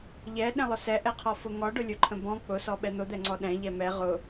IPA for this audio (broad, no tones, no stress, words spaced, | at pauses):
ʎɛɗɛ̃lˠʊ sɛʔɛqʰɔfʊ ŋɔɖʊlʲʊǃʰə̃ bɔ̃ k͡pʊsɔɓɛ n̪ʊd̪ɛŋ͡ǀɔ ɗɛ̃ʎɛ mɛ ʁʊ